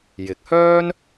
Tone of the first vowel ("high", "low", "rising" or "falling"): rising